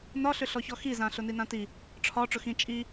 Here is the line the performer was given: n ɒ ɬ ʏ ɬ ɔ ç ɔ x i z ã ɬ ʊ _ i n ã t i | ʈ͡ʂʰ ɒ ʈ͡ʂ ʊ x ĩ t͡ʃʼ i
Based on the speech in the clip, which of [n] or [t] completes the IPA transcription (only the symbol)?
n